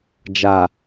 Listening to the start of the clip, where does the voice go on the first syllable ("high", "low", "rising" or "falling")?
low